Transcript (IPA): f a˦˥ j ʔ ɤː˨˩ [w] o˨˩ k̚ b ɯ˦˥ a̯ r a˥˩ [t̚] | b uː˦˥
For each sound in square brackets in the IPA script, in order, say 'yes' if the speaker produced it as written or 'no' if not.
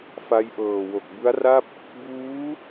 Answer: yes, no

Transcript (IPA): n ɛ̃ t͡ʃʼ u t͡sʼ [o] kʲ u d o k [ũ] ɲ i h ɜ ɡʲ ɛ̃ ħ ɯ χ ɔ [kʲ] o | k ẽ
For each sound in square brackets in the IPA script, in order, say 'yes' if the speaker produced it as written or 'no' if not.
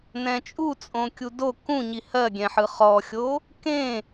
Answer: no, yes, no

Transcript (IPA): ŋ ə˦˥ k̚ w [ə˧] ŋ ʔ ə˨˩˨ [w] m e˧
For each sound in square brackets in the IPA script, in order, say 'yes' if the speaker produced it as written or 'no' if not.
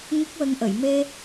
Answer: yes, no

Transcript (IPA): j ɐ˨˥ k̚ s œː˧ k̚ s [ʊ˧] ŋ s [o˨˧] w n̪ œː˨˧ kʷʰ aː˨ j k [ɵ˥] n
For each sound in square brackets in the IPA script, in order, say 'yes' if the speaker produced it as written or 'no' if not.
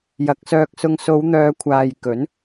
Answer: yes, yes, no

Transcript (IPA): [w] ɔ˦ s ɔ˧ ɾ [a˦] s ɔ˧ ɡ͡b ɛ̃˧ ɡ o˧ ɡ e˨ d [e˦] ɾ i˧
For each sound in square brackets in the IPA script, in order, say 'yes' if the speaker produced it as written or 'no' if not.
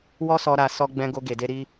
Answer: yes, no, no

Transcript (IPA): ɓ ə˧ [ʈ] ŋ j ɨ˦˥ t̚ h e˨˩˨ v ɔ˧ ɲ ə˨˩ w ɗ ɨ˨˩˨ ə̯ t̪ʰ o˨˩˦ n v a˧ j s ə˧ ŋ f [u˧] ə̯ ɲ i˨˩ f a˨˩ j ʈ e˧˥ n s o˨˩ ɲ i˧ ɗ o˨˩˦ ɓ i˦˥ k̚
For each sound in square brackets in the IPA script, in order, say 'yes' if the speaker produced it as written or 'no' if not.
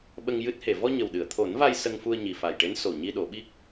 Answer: no, yes

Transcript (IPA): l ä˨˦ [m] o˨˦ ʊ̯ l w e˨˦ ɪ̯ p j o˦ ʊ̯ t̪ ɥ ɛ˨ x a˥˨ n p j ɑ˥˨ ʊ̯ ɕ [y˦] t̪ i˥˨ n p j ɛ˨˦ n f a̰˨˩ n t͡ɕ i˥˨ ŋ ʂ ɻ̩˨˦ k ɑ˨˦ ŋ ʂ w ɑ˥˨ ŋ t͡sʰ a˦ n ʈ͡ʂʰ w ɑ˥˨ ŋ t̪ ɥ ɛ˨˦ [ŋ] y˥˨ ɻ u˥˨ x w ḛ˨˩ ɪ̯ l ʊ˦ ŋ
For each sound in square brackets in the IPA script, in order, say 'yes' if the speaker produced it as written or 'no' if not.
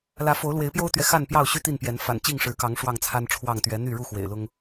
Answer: no, yes, no

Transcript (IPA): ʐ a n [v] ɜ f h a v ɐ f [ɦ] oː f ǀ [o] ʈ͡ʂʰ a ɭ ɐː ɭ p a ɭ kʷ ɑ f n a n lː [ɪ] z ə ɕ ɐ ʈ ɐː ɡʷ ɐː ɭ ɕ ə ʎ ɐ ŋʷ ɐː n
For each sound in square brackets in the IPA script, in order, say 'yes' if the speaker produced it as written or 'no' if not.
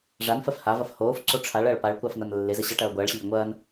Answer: no, no, yes, yes

